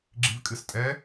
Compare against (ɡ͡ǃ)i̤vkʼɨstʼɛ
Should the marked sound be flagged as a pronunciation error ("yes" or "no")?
yes